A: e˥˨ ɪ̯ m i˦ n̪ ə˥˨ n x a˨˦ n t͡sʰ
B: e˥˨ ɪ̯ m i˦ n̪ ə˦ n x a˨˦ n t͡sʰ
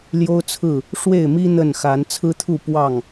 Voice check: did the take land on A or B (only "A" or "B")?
A